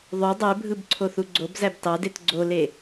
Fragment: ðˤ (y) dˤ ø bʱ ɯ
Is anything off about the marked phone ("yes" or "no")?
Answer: no